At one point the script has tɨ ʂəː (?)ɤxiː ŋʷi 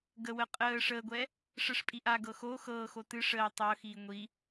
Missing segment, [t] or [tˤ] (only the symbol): tˤ